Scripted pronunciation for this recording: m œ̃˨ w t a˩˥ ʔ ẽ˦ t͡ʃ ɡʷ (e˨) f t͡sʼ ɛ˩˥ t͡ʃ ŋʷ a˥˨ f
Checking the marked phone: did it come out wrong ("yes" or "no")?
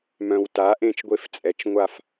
yes